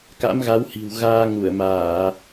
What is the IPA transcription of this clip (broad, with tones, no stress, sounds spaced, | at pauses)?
k a̰˧˥ m ɣ a˨˦ w h i̤˨˩ w ɣ aː˧ ŋ u˧˩ ə̯ m aː˧˩˨